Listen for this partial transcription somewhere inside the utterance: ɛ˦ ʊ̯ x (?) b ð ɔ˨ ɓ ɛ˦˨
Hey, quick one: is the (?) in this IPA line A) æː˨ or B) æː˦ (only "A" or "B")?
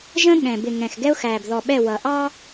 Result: A